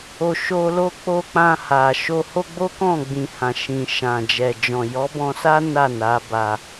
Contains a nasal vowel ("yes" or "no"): yes